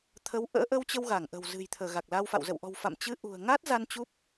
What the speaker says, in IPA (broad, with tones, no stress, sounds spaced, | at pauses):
t̪ʰ ə˨˦ w ʔ ə̰ː˧˥ ʔ ə˧ w t͡ɕ ə˧ w ɣ a˧˩ ŋ ʔ ə̤˨˩ w z ɨ̤˨˩ j t̪ʰ əː˧˩ ɣ a˨˩ k̚ l a˧ w f a̰˧˨ w z ə̰˧˨ w ʔ ɔ̤˨˩ w f a̰˧˨ m t͡ɕ ɨ˨˦ ʔ ṳ˨˩ ə̯ ŋ a˦˥ t̚ z a˧ n t͡ɕ u˦˥ p̚